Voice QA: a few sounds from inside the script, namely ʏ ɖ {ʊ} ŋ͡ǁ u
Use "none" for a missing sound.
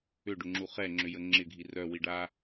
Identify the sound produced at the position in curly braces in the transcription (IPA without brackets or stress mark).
ʊ